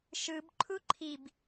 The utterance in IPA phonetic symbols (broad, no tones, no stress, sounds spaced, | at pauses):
ʃ ɯ b ǃʰ u ǃʰ i b